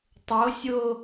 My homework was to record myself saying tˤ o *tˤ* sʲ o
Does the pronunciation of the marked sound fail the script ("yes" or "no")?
yes